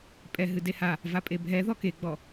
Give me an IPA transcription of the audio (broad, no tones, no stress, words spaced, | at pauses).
pʼɛɦɨ deha | vapʼebʱɛ ðɔkeɡ͡bɔ